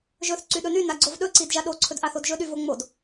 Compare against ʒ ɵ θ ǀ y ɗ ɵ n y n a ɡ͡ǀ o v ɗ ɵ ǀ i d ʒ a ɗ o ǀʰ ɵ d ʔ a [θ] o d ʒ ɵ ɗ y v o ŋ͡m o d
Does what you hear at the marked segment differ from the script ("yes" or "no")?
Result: no